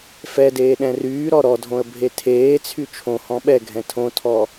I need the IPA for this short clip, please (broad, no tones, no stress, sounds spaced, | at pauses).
f ɛ d eː ɗ ɛ̃ r yː ɾ ɔ ɾ ɔ dʱ õ ə̯ bʱ e tʰ eː t͡sʰ y t͡ʃʰ õ h ɔ̃ ɓ ɛ ɡʱ ɛ̃ tʰ õ tʰ ɔ